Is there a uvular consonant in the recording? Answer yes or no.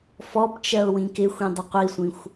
yes